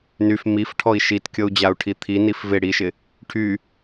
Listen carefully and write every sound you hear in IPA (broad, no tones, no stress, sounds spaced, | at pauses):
n y f m i f ʈʰ ɔ i̯ ʃ i t kʲ ɤ u̯ d͡ʑ a u̯ ʈʰ i t̪ʰ i n i f v ɪ ɽ i ʃ ɪ | ʈʰ y